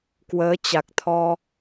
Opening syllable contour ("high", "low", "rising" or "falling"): rising